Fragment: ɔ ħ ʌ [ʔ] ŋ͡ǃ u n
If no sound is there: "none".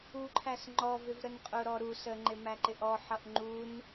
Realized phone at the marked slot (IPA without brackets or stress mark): ʔ